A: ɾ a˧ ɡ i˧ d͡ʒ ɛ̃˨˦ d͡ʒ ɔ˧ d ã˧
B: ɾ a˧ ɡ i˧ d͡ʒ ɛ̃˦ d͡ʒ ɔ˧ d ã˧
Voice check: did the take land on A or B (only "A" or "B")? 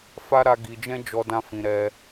B